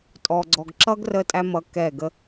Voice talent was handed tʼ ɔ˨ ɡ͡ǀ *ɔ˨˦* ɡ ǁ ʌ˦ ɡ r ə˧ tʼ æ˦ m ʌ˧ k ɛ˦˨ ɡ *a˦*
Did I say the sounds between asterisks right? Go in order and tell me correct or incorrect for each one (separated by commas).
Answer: incorrect, incorrect